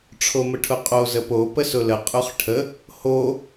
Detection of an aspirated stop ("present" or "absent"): present